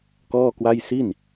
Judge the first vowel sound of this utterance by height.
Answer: mid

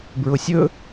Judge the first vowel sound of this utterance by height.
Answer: high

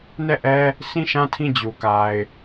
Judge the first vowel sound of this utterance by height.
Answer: mid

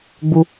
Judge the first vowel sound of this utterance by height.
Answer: high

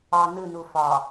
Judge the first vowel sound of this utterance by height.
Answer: low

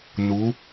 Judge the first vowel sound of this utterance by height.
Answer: high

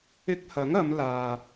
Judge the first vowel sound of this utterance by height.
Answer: high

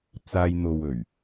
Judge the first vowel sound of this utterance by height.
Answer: low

